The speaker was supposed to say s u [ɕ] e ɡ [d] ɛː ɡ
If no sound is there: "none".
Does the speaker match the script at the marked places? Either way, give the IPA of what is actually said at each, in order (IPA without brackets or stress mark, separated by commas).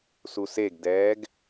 s, d